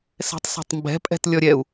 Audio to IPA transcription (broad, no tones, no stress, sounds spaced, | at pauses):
s ɛ̤ tˤ s ɔ̤ tˤ m b ɛ̤ pʼ ɛ̤ t lʲ ɔ ɾʲ ɛ u̯